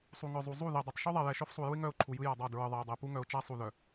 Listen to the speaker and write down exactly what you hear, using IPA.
sˤu˨ŋœ˨zˤu˨zˤu˦˨ ðɛ˨dˤɛ˨tˤ ʃu˦ðˤɛ˨jɛ˨ ʃœ˦fsˤu˨ju˦ɪ̯ ŋœ˦˨ʊ̯ ǃʰu˨ jɯ˦ja˨dˤa˦˨ dɹɯ˨ðˤɛ˨ɪ̯dˤɛ˨ pu˦ŋœ˨ʊ̯t͡ʃa˦ sˤu˨ðœ˨

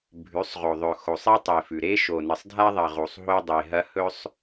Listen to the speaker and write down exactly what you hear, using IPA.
bʱʉ˨˦sˤʁo˨ðˤɵ˨ xo˨sˤi˦tˤe˨fʉ˨ ɾe˦ʃo˨ nɨ˨sˤdʱa˦ðˤɐ˨ ʁu˨sˤɦo˦dˤe˨ɦɐ˦ hɵ˦sˤ

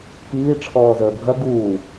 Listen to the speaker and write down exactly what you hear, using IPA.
kiː ʈ͡ʂʰɔːzəːbʱɐ ɡuː

